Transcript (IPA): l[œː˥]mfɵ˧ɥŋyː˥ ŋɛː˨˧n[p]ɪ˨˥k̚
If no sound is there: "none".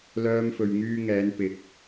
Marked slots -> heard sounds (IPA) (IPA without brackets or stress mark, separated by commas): œː˥, p